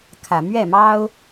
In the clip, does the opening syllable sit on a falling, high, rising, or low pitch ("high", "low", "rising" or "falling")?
low